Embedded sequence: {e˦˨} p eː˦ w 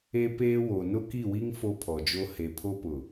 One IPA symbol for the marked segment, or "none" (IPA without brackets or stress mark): e˦